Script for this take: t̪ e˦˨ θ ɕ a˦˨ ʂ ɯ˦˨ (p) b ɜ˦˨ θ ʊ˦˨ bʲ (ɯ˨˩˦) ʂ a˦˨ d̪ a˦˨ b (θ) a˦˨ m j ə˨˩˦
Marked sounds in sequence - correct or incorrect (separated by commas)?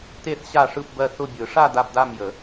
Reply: correct, correct, incorrect